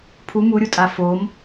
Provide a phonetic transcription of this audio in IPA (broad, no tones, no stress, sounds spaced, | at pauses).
pʰ u m u ɾʲ u tʼ a f o m